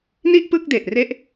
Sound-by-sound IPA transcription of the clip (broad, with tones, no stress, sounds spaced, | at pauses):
n i˥˩ ʔ p ɯ˥˩ k̚ d e˨˩ ʔ r e˥˩ ʔ